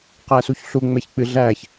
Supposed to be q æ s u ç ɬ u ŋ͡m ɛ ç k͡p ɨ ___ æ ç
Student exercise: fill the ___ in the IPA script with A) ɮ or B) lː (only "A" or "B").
A